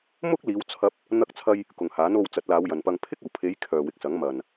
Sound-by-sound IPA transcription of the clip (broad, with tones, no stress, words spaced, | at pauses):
mʊ˥k̚liː˨˧wt͡sʰɐ˧p̚ | n̪ɐ˧k̚t͡sʰɐ˧j | kʊ˨ŋhaː˨˥no˧w t͡sɐ˨˥t̚laː˨˧wjɐ˨npɐ˧ŋ pʰɪ˥k̚ɐ˨˩wpʰe˨˧j kʰœː˨wɪ˨k̚sɐ˨˥ŋ mɐ˨n